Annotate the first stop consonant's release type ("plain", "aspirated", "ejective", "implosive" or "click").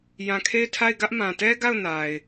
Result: aspirated